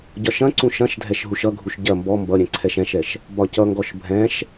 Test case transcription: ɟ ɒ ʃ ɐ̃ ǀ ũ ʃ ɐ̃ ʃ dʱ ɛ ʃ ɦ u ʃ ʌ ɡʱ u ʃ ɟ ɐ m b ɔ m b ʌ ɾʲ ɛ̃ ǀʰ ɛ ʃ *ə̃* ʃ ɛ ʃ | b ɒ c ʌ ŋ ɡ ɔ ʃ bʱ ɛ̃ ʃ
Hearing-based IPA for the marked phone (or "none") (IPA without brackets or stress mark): ɛ̃